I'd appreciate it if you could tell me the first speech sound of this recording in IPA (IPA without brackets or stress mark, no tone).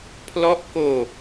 pʰ